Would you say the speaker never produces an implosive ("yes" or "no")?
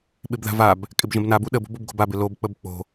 no